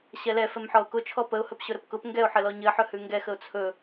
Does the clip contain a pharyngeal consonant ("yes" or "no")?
yes